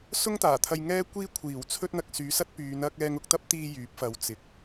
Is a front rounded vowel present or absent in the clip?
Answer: present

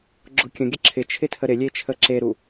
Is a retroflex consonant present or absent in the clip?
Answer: absent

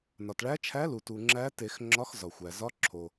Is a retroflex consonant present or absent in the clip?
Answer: present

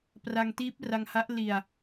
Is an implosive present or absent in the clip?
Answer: absent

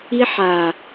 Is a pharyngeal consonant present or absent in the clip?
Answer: present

